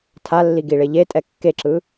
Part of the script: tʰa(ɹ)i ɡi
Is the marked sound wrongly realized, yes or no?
yes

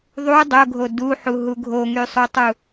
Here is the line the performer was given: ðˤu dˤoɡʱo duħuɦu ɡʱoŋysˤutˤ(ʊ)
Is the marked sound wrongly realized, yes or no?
yes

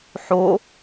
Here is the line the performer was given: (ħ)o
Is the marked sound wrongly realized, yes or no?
no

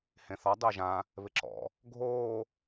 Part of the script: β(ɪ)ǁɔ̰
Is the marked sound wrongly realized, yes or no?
no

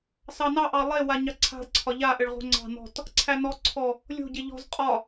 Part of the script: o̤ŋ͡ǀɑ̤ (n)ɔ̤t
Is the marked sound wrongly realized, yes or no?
no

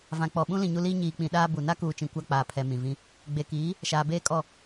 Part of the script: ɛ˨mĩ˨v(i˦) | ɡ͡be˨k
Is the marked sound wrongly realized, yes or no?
yes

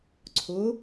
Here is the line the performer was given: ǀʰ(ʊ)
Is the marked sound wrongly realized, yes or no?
no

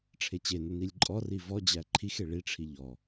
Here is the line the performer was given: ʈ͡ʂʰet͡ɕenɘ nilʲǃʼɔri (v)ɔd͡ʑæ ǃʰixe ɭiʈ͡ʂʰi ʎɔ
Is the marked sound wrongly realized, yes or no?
no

